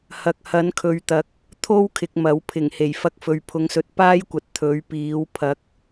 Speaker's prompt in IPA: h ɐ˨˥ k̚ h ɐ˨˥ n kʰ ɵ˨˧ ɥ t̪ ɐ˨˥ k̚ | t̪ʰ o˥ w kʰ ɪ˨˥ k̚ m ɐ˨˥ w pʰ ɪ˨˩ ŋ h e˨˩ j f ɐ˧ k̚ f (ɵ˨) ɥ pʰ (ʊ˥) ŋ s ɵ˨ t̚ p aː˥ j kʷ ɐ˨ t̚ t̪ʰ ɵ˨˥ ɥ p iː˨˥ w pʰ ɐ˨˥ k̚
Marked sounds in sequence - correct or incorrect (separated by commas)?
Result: correct, incorrect